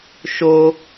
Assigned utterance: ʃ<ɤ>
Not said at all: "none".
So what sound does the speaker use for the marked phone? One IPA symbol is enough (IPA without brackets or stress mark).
o